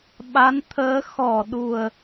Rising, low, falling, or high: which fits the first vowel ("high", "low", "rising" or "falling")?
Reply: rising